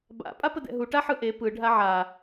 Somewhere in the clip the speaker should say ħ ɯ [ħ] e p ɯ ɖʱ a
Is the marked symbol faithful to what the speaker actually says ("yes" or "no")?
no